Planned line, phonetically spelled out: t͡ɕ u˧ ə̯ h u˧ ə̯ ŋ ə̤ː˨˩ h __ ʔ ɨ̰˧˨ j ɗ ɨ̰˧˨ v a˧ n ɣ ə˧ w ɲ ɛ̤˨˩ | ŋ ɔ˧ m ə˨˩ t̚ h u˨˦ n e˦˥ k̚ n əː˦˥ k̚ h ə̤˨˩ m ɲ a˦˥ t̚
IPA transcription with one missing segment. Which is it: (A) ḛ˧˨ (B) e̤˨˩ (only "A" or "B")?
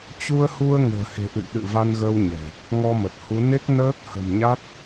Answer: B